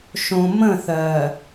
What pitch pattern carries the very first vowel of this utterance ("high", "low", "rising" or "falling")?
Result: low